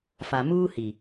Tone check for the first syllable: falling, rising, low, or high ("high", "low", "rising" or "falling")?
low